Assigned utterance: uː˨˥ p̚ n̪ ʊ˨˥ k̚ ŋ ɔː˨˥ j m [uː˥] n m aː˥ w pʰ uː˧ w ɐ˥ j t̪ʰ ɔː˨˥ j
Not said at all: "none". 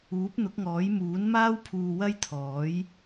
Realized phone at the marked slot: uː˨˥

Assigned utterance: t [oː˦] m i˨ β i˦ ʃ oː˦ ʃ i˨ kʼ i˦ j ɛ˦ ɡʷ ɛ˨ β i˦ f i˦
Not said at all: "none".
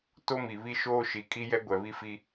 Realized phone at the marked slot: o˦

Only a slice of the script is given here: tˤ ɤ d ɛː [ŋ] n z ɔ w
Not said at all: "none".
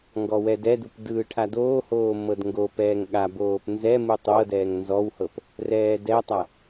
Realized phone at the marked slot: ŋ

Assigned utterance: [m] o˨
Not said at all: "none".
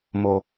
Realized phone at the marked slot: m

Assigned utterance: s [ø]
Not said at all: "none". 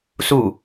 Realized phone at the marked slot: u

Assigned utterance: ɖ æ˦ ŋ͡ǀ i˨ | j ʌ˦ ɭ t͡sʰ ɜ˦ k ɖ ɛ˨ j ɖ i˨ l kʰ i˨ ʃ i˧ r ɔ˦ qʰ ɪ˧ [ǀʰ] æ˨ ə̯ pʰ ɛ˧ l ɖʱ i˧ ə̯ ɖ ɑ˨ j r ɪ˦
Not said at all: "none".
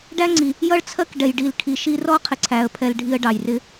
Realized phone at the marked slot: ǀʰ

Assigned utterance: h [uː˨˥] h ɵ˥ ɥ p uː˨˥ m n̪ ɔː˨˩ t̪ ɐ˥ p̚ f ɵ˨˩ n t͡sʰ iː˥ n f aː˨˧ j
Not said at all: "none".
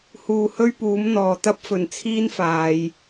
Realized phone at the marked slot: uː˨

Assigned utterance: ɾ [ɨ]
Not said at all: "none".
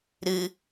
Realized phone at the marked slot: ɨ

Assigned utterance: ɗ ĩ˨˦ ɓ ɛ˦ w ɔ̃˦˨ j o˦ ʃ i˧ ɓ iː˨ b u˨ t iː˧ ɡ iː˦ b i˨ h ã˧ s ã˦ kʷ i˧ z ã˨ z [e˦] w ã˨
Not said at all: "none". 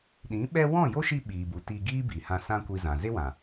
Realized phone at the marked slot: e˦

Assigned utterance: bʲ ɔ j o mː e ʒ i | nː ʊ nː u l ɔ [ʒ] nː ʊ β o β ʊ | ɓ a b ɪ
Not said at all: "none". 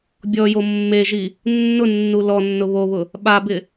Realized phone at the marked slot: none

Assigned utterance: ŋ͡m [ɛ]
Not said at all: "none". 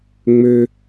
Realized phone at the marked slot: ø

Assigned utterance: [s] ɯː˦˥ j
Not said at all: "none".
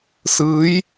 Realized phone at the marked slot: s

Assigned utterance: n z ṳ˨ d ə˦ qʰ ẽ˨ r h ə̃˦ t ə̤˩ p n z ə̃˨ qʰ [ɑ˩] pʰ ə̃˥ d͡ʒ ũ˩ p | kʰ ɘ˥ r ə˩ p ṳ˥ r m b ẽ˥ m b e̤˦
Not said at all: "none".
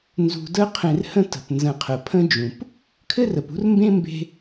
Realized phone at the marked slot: ə˩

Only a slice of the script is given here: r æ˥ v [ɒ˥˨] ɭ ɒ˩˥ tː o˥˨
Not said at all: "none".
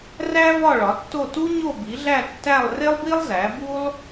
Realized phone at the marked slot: ɒ˥˨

